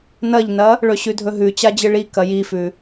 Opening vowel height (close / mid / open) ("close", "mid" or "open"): open